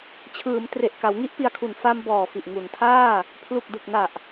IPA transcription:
t͡ɕʰ ɯː˩˦ m t r e˨˩ ʔ k a˩˦ w ŋ i˥˩ ʔ p i˧ a̯ kʰ u˨˩ n f a˧ m b ɔː˨˩ f i˨˩ ʔ ŋ u˩˦ n tʰ aː˥˩ | pʰ l u˨˩ k̚ d ɯ˨˩ k̚ n a˨˩ ʔ

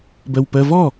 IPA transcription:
b ɜ w p ɜ v ɔ

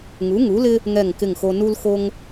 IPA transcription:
ŋ u˩˥ ŋ u˩˥ l ɪ˦ | ŋ ɛ˦˨ ŋ k ɪ˦˨ ŋ x o˦ n u˦ l x o˦ ŋ

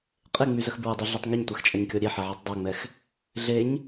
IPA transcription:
qʼ e ŋ͡m y z ə x b ɹ ə dˤ y ɮ œ tˤ ŋ y ɲ tʷ ɛ x t͡ʃʼ a ɲ kʲ ɔ ɾʲ e ħ ɛ ʕ a tˤ dˤ ø ŋ͡m ɛ x | ɮ e ɲ

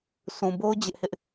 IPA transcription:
sʰ ũ˨ b o˦ ʊ̯ d͡ʑ ɪ˦ ʔ h ɪ˦ ʔ

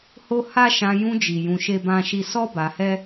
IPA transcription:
h o˦ h a˦ ʃ ã˧ j ũ˧ d͡ʒ i˨ j ũ˧ ʃ e˦ b ã˦ ʃ i˦ s ɔ˦ b a˧ h ɛ˦

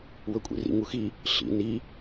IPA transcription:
w ɵ kʷʼ ḭ r ḭ ŋ u x i | ɬ ḭ n i

